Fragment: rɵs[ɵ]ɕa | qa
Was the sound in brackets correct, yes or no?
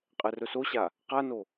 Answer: no